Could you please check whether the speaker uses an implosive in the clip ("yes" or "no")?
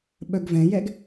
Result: yes